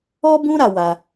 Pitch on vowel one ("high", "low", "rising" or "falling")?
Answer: high